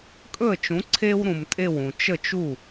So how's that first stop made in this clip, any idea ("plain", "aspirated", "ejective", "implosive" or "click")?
ejective